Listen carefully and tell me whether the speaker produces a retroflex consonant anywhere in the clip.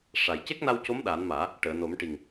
yes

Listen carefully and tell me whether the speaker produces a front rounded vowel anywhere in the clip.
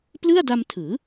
no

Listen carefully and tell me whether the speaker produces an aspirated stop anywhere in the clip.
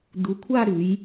yes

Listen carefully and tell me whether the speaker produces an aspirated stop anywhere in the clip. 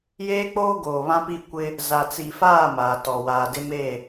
no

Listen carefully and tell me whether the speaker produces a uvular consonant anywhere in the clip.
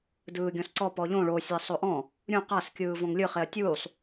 yes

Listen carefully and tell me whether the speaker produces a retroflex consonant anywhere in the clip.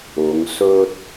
no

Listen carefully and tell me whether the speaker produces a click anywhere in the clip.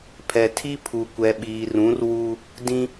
no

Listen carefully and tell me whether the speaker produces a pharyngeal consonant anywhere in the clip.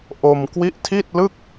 no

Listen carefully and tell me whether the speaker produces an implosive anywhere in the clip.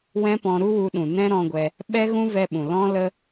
yes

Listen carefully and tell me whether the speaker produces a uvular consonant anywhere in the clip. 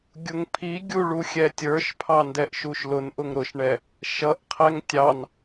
yes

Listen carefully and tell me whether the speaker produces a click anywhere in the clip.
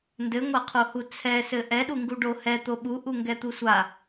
no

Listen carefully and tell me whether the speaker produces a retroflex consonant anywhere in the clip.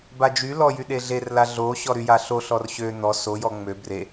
no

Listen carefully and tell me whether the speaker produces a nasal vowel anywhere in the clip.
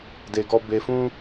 yes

